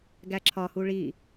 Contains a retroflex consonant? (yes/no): yes